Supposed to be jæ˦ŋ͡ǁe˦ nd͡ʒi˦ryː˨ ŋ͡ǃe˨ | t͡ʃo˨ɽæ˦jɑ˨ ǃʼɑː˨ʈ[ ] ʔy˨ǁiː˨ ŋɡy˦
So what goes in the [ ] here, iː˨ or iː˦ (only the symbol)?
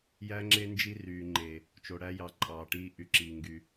iː˦